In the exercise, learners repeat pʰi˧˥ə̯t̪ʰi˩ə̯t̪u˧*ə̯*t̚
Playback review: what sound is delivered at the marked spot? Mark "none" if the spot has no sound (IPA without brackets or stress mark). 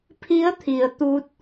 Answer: none